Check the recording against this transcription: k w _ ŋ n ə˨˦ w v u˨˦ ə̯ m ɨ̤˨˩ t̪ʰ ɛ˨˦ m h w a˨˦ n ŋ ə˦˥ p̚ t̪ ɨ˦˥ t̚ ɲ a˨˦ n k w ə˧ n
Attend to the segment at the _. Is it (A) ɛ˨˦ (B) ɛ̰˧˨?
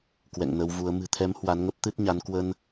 B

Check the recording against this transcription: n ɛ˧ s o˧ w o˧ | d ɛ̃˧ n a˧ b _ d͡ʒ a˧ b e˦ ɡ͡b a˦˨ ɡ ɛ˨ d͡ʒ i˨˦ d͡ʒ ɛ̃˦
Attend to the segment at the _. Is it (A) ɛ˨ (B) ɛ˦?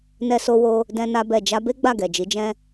A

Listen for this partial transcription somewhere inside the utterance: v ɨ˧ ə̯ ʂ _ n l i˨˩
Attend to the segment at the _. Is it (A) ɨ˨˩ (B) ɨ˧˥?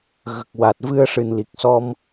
A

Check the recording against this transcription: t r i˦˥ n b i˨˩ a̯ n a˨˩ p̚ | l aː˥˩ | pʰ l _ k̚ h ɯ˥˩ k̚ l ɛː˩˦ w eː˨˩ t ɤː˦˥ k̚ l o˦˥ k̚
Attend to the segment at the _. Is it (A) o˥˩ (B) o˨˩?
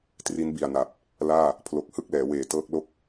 B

